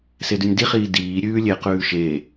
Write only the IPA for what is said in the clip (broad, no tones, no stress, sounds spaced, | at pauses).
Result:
s e d ʉ nʲ d i χ iː d iː ɾʲ ʉː lʲ e q ʉː ʃ e